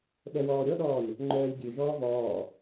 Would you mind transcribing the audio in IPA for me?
ɓ ɛ w ɔː ɾʲ ɔ ɗ ɔː lʲ | ŋ͡ǃ œː lʲ ɡʲ ø ʒ ɔː v ɔː

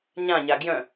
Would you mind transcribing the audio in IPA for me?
ɲ ã ɲ a ɡ j œ̃

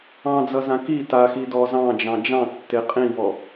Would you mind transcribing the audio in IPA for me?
ɑ̃ d͡z ʌ z ã k i t a x i d ɔ z ɑ̃ d͡ʒ ɑ̃ d͡ʒ ɑ̃ tː e qʼ ĩ v ɔ

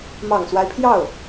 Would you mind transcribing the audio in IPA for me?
m ɑ˨˩ ŋ s w a˦ ɪ̯ pʰ j ɑ˥˩ ʊ̯

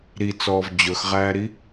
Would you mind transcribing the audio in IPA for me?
ɾ i t͡s ɔː v d͡ʑ ɵ x ʁ æː ɾ i

